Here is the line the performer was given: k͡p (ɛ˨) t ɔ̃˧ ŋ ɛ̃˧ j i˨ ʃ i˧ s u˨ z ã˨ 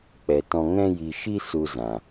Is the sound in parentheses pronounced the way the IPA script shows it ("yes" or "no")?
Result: yes